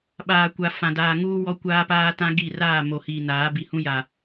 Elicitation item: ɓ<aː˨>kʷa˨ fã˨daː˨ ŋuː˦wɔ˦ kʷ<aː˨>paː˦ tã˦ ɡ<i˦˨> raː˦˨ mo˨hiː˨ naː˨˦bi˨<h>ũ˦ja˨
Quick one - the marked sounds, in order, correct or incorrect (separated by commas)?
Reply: correct, incorrect, correct, correct